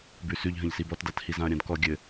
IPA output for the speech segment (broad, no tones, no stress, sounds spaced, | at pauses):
b ʉ s ʉ ʎ ɦ ə̃ ʎ s i b ɔ t d a t h i z ã ɐ̯ ɾʲ ã d k ɔ ɡʲ ɘ